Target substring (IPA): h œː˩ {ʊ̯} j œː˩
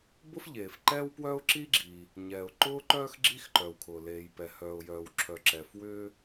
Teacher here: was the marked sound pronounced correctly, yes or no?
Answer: yes